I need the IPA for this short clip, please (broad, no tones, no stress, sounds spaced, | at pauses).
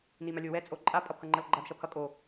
n i m a lʲ o w ɛ t͡sʼ o ǃʼ a pʼ ʌ pʰ ʌ ŋ͡ǃ ʌ l ɡ͡ǃ a d ʃ ʌ pʰ ʌ kʼ o